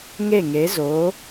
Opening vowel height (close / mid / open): mid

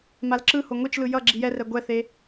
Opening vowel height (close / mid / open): open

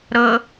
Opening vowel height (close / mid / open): mid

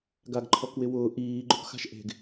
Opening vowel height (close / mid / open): open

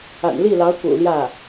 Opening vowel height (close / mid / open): open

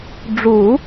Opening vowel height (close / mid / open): close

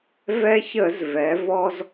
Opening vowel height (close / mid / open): mid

